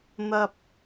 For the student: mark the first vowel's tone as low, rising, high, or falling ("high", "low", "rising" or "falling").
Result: high